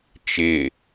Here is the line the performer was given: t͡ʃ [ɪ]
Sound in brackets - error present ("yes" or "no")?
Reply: no